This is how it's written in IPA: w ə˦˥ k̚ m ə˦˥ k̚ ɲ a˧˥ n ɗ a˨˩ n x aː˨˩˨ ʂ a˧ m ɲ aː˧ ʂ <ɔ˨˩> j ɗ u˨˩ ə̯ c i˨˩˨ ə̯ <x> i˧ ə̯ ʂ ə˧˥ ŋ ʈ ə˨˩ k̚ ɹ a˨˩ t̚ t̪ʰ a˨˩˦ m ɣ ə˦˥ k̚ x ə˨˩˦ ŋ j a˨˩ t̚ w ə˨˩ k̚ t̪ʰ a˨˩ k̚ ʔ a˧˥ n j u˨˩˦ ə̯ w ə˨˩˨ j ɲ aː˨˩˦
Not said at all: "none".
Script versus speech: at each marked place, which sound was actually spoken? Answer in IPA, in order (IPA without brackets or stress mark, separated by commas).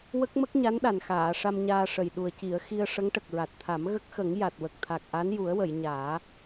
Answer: ə˨˩, x